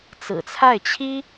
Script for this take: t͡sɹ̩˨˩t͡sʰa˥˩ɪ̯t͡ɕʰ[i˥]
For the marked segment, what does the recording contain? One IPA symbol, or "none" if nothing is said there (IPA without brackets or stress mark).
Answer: i˥